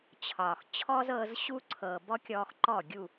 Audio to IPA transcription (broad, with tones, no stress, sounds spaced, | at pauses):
t͡ɕʰ ɒ˨ x t͡ɕʰ ɔ˦ z ɤː˧ z ɕ u˦ ǀʰ ɤː˨ b ɔ˦ kʲ ɔː˧ x ǃ ɔ˦˨ ɡʲ u˦˨